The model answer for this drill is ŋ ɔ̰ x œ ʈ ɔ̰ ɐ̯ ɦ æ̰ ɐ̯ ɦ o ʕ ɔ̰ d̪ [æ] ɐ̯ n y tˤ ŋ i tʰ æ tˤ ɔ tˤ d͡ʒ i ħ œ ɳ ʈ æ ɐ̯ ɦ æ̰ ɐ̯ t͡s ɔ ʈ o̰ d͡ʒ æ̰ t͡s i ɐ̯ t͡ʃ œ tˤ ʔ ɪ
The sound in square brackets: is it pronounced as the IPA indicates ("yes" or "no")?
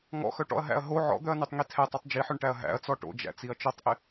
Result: no